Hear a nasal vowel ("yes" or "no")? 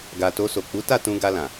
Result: yes